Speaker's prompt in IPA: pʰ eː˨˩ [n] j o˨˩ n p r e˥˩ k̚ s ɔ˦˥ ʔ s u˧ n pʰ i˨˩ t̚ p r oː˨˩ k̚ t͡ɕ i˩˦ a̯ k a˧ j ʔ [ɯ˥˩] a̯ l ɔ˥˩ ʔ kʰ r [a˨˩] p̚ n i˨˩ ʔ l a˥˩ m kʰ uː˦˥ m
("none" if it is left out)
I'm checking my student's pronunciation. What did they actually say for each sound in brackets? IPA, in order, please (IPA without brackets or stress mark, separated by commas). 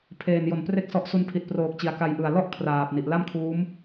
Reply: n, ɯ˨˩, aː˨˩